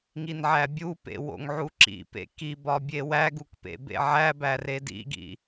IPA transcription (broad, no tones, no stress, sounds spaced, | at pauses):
ŋ i n ʕ æ bʲ u p ḛ w o̰ ŋ ʕ u ǁ ḭ p ḛ k i b ɒ bʲ e w æ ɡ u k p ḛ b ḛ ʕ æ b æ r e d ḭ ɡ ḭ